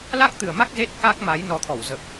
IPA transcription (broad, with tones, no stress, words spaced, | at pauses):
la˦˥k̚t̪ɨ˨˩ə̯ma˦˥k̚ ze˦˥t̚ ka˦˥k̚ma˨˦j nɔ˨˩t̪ʰɔ˧˩wzə˨˩p̚